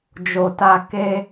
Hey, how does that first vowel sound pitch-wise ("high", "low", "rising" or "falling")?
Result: low